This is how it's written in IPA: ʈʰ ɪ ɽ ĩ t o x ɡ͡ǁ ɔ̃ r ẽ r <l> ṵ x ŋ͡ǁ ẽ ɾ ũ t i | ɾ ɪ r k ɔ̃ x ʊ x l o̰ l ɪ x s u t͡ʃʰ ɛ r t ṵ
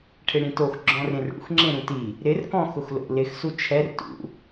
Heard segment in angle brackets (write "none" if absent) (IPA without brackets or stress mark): ɽ